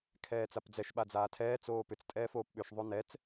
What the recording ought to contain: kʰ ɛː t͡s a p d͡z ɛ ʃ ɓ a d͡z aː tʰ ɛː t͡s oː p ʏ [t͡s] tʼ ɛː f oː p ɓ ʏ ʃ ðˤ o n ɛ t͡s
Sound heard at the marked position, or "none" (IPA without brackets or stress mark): t͡s